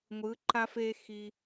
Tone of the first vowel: rising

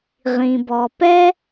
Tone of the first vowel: low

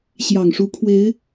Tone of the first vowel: low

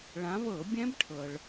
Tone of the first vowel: rising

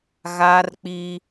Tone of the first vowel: high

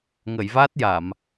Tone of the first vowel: low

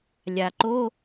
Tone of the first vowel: low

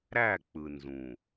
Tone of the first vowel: falling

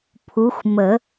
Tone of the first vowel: rising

